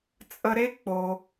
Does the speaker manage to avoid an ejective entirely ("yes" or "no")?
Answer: no